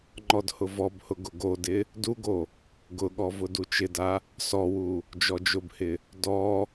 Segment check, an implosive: present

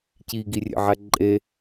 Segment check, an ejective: present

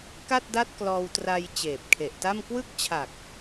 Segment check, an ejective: absent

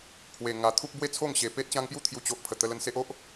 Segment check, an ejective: absent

